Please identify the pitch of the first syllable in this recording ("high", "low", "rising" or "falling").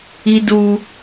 high